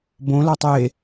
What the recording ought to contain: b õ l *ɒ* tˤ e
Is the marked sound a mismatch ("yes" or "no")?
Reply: no